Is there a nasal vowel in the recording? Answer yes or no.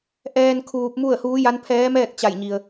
no